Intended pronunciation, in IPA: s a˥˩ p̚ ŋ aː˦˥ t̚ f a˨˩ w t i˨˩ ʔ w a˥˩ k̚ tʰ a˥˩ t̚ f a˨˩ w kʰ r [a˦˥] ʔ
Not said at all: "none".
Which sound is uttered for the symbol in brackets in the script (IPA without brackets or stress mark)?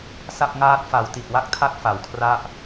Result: a˥˩